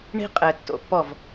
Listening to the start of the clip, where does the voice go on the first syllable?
high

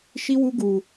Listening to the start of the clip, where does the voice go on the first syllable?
high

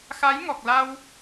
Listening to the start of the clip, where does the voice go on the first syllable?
rising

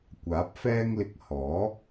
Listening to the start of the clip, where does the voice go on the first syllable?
rising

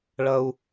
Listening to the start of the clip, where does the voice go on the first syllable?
high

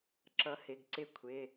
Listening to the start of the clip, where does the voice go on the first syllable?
rising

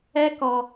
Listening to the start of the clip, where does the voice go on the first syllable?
high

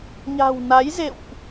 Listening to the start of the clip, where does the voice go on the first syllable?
low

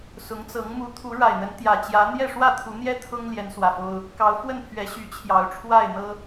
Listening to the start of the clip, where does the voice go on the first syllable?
rising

